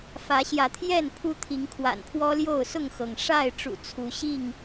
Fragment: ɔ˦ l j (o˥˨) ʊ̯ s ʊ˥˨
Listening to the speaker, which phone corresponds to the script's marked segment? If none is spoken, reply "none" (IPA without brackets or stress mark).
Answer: o˥˨